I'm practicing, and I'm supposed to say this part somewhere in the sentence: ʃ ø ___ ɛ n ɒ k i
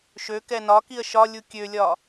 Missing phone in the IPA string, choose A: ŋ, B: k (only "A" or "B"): B